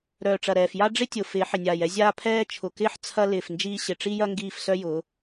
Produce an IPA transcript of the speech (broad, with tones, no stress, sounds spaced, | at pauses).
ɾ œː˨ ʈ͡ʂ ɐ˨ ɾ ɛː˨ f j a˦ ɖ͡ʐ ɪ˦ tʲ ʊ˨ f ɪː˨˦ ħ ɪ˨ nʲ aː˨ j ɛ˦ zʲ aː˦ pʰ ɛː˦ t͡ʃʰ ʊ˨ k ɪː˦ ħ t͡sʰ ɐ˦ l ɪː˨ f n d͡ʒ iː˦ ɕ ɪ˨ ʈ͡ʂ i˦ j ɐ˦ ŋ ɡ iː˦˨ f s œ˦ j ʊː˨˦